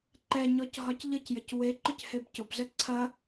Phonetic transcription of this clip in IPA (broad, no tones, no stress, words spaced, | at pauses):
ǃɛɲɔc ɦɒcʎəcjəc we ǃʊchebcʊbzə ǀʰɐ